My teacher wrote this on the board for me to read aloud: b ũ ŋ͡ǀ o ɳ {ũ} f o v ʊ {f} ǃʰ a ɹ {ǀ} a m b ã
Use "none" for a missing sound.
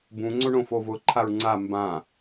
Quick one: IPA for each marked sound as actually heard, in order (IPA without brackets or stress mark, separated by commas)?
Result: õ, none, ŋ͡ǀ